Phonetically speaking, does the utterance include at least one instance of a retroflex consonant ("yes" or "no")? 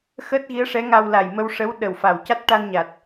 yes